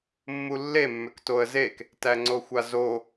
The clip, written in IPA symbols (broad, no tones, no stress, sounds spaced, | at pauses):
mː u lː e mː ʏ k t o ə̯ z e k | t æ ŋ͡ǀ o xʷ a z o